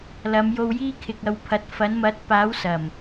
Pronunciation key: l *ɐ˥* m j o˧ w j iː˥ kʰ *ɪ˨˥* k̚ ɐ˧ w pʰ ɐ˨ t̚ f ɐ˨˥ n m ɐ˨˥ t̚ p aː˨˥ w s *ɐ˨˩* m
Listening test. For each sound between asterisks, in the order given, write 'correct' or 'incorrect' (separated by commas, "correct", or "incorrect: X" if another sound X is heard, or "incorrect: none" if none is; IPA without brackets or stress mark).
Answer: incorrect: ɐ˨˧, incorrect: ɪ˧, correct